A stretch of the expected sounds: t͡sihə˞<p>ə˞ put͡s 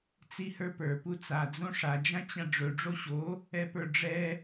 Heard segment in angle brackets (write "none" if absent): p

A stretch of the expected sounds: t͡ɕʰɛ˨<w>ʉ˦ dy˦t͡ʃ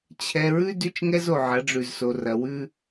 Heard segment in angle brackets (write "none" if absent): ɹ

